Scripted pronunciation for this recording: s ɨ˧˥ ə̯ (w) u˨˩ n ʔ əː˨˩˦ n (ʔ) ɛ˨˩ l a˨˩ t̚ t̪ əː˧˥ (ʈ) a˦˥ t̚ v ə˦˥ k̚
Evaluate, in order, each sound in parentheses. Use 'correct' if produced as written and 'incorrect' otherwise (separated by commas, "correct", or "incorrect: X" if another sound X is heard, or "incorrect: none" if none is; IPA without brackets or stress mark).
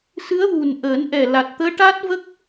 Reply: correct, correct, correct